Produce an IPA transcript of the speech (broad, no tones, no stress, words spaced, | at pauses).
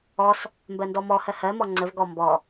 ɔs | mbɜndɔmɔhɜ hɜmɔ ŋ͡ǀəvɡɔ mbɔ